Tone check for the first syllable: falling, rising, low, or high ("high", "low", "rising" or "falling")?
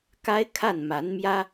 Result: high